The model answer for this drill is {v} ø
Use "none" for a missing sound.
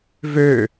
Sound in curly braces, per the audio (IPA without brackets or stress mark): v